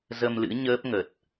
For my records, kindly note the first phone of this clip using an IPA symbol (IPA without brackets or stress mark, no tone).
z